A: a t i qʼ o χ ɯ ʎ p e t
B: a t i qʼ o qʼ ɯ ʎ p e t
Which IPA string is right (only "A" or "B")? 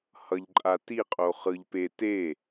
A